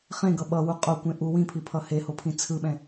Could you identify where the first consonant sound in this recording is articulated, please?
uvular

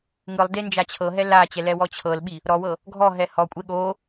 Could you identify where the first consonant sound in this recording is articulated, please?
velar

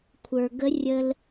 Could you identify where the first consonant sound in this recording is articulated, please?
velar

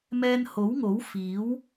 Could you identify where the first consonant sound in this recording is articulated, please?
labial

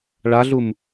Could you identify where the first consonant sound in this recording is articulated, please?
retroflex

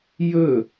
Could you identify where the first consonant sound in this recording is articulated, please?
palatal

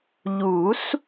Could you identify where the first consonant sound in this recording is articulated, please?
palatal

